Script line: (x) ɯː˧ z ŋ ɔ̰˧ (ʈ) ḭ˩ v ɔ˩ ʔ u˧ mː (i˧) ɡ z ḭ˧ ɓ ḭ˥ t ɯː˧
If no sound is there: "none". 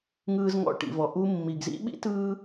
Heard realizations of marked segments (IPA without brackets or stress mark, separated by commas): ŋ, ʈ, i˩